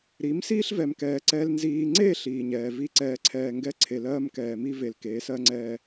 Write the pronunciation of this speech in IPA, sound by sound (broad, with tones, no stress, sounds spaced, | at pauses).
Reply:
ɾ i˨˦ m s iː˦ ɬ v ɛ˨ m k ɛː˨ ǀ ɛ˨ l n z iː˨ ŋ͡ǀ e˦˨ ɬ iː˨ ɲ ɛː˨ v i˦ ǀ ɛː˨ ǀʰ ɛː˨ ŋ ɡ ɛ˦ ǀʰ e˨ l ɜː˦ m k ɛː˨ m i˦ v e˨ l k eː˨˦ s ɜ˦ ŋ͡ǀ ɛː˦